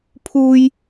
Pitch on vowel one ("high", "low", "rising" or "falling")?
high